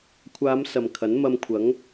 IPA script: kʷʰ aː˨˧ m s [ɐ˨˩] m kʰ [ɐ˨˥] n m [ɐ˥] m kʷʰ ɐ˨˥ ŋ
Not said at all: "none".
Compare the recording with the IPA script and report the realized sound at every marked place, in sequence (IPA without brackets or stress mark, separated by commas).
ɐ˨, ɐ˨˥, ɐ˧